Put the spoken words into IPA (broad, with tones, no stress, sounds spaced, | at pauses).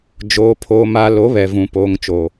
d͡ʒ oː˨ pʰ oː˨ m a˨ l o˨˦ β ɛ˨ v ũ˨ p oː˨ ŋ t͡ʃ oː˨